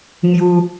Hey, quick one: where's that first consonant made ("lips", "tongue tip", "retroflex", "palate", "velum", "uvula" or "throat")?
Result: velum